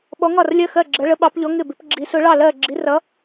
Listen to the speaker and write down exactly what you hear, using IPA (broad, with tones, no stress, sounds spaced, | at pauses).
ɓ ɔ˧˥ ŋ ɒ˥˧ r lʲ ɜ˥˧ x ɜ˥˧ ɡ͡ǁ ɜ˧˥ ɭ ə˧˥ ɓ ɑ˧˥ p ʎ ɔ˧˥ ŋ ɪ˥˧ b ɪ˧˥ p ɡ͡ǁ i˧˥ s ʊ˧˥ ɭ ɑ˥˧ l ɜ˥˧ ɡ͡ǁ i˧˥ r ʌ˧˥